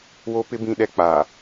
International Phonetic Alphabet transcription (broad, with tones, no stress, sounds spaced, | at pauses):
w o˦ p ɪ˦ b ĩ˦ ɗ ɛ˦ k͡p aː˨